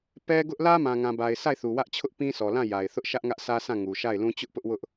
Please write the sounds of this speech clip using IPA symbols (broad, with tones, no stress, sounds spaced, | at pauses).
p ɛ˦ ɡ ʊ˦ ʔ l ä˦ m ã˨ ŋ ã˨ b a˨ ɪ̯ s a˦˨ ɪ̯ θ u˨ w ä˦ ʔ t͡ɕʰ ʊ˦ ʔ p ĩ˦ sʰ ɔ˨ l ã˦˨ j a˨ ɪ̯ θ ʊ˦ ʔ ʃ ä˦ ʔ ŋ ä˦ ʔ sʰ ä˦ s ã˦˨ ŋ u˨ ʃ a˦˨ ɪ̯ l ũ˦ t͡ɕ ʊ˦ ʔ p ʊ˦ ʔ w ʊ˦ ʔ